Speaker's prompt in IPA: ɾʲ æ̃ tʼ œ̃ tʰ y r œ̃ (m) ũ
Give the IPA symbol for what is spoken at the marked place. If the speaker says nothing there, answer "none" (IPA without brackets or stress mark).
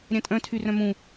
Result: m